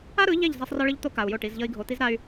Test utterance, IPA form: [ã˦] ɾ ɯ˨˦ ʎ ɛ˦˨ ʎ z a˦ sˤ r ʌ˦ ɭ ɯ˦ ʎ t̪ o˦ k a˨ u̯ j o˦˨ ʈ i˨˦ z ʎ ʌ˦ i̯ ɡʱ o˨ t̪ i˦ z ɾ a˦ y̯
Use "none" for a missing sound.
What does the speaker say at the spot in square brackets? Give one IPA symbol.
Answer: a˦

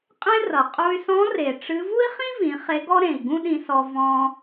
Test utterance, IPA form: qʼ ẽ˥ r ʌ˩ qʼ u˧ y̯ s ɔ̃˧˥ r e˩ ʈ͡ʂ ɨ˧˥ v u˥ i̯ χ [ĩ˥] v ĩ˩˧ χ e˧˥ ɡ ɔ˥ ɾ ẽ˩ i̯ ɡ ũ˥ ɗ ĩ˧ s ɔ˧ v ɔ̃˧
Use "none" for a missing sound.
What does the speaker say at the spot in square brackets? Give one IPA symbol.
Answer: ĩ˥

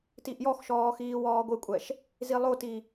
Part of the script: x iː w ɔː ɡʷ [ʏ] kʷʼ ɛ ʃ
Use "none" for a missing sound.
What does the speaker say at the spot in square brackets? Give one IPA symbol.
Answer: ɨ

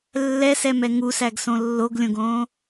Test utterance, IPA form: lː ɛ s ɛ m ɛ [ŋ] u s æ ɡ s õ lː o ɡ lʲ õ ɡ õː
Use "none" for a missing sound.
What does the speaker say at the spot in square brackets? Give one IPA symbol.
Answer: ŋ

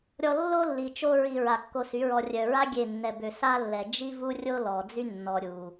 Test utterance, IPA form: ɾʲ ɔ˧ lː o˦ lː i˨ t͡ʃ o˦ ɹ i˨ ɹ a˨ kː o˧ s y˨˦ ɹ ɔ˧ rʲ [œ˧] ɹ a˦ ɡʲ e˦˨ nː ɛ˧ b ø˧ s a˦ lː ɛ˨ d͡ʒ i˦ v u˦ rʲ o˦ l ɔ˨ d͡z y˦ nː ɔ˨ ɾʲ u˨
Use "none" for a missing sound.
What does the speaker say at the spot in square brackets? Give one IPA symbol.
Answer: œ˨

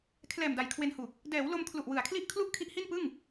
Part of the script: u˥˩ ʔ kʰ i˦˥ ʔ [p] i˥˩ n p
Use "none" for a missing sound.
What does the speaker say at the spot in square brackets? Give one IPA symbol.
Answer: h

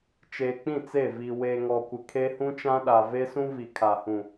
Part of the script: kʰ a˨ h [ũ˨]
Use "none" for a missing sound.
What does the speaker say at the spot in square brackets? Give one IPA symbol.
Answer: ũ˨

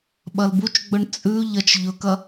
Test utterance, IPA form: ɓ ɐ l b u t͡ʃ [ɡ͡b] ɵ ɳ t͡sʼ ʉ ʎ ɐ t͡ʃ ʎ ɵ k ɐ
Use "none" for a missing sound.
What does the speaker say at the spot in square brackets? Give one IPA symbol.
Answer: ɡ͡b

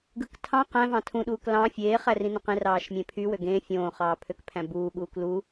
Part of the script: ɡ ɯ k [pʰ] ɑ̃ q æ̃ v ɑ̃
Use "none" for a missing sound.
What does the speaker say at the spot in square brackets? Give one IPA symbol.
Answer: tʰ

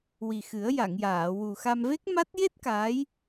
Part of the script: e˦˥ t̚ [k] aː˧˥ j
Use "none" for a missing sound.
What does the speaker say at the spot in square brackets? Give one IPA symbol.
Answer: k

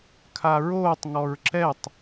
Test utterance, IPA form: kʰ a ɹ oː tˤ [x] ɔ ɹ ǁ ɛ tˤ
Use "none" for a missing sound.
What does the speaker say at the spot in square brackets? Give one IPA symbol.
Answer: ŋ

